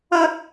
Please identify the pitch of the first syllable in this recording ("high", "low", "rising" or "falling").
high